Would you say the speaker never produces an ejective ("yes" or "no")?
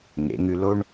yes